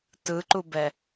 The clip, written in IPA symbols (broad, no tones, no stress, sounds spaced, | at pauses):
t ɯ ǃ u b ɛ